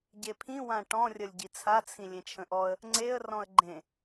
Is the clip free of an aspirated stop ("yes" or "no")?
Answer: no